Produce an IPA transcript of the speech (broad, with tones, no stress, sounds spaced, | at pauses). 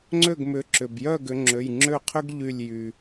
ŋ͡ǀ ø˥˨ ɡ m ʏ˨˦ ǁ ʏ˩ b j œ˥˨ ɡ ʏ˨˦ ŋ͡ǁ ø˩˧˩ j ŋ͡ǁ ø˥˨ qʰ ʏ˥ ɡ ʎ y˧˩ lʲ j y˩